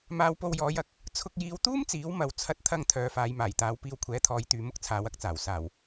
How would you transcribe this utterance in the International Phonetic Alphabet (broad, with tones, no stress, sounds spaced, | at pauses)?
m aː˧ w p o˧ w j ɔː˨˧ j ɐ˨ k̚ | t͡sʰ ʊ˧ k̚ j iː˨˧ w t̪ uː˥ m t͡s iː˨˥ w m ɐ˨ w t͡sʰ ɐ˧ t̚ t̪ʰ ɐ˧ ŋ t̪ʰ œː˨˧ f aː˨˧ j m aː˨˩ j t̪ aː˨˧ w p iː˧ w kʷʰ ɛː˨˥ t̪ʰ ɔː˨˧ j t̪ yː˨ m ʊ˥ k̚ t͡sʰ aː˨˧ w ɐ˧ k̚ t͡s aː˨˩ w s aː˨˩ w